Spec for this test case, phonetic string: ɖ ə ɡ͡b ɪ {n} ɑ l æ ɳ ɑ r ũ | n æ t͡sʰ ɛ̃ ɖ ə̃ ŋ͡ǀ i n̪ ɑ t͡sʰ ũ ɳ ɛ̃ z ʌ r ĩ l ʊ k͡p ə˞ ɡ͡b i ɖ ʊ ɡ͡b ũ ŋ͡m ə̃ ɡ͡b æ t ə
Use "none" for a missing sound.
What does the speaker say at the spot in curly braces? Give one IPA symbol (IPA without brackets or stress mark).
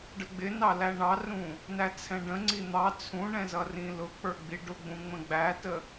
n